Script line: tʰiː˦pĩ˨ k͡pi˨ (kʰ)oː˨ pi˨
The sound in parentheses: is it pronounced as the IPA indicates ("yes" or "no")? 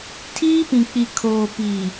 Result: yes